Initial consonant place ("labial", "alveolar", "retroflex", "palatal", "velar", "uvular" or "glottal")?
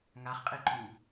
velar